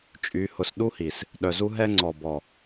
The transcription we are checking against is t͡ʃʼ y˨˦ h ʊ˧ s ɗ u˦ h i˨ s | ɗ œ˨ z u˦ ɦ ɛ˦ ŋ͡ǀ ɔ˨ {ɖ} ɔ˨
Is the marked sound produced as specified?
no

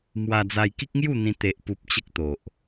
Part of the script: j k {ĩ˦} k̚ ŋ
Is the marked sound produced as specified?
no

